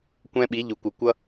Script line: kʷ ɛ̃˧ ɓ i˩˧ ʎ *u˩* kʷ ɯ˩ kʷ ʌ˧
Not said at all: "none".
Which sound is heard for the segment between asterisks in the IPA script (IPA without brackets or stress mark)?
u˩